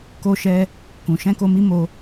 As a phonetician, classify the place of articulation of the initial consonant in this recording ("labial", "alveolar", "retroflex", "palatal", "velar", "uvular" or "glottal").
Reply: velar